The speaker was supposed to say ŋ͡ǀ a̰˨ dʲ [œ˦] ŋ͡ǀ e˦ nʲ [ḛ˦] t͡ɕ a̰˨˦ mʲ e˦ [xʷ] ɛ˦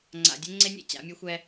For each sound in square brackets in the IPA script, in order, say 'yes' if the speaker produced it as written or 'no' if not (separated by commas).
no, no, yes